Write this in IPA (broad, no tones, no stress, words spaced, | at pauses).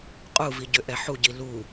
qʼuvi ɟʏʔɛħuɟi lu